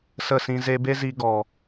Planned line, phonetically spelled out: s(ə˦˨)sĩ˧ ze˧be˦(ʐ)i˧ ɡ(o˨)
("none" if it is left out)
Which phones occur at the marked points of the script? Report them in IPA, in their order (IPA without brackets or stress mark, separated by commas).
ə˦˨, z, ɔ˨